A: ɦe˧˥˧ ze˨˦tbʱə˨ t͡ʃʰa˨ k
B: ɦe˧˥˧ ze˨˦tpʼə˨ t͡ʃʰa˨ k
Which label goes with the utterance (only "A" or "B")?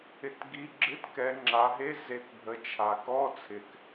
A